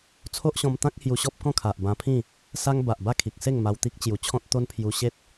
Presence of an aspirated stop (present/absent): present